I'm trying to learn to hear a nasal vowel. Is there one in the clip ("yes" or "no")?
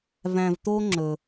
yes